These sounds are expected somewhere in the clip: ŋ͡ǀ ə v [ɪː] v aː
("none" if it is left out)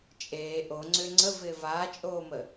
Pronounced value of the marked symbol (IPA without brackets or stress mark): ɪː